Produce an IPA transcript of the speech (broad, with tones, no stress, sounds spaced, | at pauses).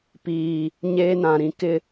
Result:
p iː˨ | ɲ eː˦ n ã˨ ɾ ĩ˦ k ɪ˦